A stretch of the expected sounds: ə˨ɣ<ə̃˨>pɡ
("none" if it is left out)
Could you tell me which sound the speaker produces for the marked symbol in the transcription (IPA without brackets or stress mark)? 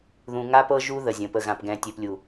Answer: ã˨